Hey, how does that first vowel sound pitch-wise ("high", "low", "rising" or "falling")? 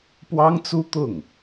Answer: high